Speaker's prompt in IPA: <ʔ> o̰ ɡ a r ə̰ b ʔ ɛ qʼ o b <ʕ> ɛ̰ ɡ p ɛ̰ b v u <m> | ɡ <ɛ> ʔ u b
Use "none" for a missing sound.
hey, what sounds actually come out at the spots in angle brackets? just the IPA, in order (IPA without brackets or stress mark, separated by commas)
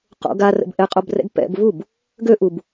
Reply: q, r, b, ø